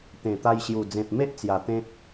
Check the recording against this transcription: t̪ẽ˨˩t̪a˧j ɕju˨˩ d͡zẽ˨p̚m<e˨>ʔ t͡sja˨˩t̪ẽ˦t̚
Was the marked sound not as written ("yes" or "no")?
yes